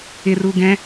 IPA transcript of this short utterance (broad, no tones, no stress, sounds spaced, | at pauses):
ɪ r u ɡ ɛ̃